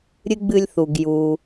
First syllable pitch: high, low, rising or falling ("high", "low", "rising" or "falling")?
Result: high